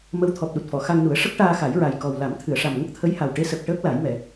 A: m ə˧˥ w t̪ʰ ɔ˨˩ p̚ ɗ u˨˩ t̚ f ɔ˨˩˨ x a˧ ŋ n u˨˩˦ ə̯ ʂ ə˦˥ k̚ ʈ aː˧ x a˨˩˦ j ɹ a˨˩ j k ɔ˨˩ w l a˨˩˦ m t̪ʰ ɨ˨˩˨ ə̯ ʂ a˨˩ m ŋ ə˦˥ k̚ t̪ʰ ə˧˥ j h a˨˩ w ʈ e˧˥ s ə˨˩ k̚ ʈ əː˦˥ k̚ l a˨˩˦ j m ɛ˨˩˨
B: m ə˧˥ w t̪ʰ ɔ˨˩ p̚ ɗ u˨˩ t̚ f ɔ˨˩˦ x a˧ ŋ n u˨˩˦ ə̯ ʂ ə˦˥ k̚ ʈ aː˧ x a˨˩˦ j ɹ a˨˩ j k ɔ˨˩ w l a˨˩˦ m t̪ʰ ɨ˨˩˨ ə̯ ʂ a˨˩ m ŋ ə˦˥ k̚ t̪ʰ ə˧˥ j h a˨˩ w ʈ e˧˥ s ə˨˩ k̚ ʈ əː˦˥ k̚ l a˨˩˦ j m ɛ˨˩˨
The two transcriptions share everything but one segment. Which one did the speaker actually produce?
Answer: A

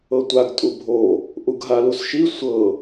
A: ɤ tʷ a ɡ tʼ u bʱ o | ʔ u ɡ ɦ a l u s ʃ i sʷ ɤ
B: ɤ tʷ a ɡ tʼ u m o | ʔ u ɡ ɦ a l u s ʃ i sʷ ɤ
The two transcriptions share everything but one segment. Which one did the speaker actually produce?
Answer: A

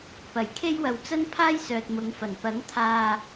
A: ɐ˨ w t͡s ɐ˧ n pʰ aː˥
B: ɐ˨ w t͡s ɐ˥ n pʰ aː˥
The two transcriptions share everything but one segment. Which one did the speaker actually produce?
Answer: B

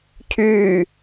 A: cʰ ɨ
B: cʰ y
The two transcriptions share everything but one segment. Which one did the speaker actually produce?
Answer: B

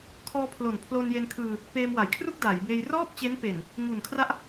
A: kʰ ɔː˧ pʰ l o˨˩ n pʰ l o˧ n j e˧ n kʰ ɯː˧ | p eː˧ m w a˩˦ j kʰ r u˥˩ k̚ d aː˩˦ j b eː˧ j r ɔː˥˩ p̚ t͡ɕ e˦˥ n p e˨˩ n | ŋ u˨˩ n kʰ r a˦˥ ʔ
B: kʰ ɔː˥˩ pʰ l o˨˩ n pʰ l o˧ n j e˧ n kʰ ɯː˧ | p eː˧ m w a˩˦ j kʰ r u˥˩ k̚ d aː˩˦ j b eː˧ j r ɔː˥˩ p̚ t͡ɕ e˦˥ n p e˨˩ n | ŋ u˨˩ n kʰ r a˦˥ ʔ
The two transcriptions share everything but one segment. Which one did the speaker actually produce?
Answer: A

